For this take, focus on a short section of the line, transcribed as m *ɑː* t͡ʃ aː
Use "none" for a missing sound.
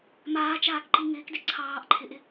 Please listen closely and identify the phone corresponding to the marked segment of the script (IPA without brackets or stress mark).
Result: aː